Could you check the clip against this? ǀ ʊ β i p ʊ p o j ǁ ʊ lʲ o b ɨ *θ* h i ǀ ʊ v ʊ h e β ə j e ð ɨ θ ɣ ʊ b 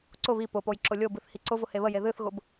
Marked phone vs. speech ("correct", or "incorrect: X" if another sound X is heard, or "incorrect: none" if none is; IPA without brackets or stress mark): correct